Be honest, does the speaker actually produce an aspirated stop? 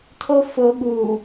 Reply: yes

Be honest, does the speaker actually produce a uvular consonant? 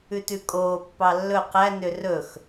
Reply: yes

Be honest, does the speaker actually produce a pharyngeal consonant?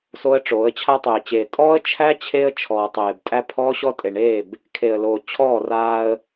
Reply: no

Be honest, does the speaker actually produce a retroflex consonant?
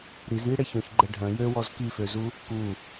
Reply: yes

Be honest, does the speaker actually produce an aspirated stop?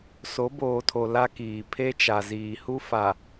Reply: yes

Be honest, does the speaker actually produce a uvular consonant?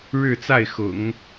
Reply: no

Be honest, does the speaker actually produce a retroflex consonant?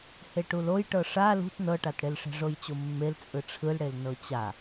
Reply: yes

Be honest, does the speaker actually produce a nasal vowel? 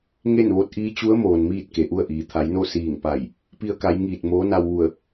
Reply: no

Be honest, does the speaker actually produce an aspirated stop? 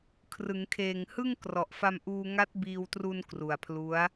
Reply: yes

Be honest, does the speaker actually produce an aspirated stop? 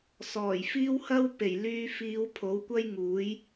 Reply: yes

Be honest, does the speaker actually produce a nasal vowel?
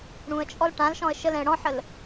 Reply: yes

